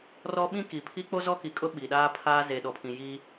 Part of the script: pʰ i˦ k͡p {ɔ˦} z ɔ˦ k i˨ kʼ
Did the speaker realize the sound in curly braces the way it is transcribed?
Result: no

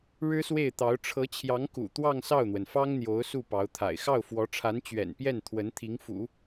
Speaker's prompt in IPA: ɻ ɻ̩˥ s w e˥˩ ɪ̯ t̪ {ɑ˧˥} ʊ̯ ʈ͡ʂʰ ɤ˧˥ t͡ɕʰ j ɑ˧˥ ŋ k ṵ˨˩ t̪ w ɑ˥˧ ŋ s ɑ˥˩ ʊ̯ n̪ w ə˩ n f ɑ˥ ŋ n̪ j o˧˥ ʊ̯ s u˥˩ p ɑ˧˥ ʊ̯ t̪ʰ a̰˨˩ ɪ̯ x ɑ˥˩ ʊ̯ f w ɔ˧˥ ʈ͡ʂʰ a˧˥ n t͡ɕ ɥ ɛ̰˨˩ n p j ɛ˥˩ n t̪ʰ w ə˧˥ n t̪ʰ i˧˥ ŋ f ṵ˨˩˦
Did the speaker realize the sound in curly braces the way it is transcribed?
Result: yes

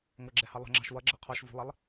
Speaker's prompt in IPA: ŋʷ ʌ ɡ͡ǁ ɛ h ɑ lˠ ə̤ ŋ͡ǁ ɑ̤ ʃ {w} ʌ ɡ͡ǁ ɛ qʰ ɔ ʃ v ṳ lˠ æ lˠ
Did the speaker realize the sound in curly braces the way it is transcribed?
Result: yes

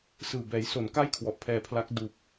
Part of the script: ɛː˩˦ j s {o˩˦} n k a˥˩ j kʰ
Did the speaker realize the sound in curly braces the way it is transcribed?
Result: yes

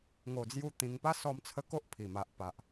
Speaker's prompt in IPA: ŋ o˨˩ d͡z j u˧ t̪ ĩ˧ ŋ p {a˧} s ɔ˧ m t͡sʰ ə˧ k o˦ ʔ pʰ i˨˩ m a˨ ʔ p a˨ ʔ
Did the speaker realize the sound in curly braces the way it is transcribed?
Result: no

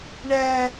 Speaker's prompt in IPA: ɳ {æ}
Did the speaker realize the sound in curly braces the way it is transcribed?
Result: yes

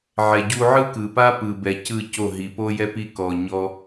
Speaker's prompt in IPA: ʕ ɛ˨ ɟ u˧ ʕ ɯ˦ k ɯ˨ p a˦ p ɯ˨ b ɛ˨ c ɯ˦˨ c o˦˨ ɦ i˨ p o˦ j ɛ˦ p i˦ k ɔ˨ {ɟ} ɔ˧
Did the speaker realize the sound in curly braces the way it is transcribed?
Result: no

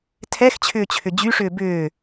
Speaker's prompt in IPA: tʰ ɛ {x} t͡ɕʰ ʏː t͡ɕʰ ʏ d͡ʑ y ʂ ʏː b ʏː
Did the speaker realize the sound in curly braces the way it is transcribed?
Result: yes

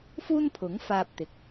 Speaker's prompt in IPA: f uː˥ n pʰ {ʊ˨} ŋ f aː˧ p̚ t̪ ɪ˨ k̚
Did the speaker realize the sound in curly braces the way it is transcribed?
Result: no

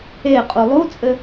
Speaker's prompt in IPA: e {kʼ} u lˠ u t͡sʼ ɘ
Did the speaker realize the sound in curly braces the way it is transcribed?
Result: no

